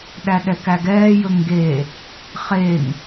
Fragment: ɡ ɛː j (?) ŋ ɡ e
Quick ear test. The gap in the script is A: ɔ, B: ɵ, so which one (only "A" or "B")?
B